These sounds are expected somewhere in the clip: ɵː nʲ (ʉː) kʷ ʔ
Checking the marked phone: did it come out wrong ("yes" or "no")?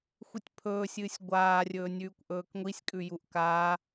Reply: no